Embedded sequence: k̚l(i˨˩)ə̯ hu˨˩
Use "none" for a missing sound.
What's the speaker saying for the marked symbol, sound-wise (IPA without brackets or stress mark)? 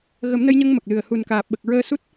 ɨ˨˩